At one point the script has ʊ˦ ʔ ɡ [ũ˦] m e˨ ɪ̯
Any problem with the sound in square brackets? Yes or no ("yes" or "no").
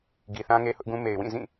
no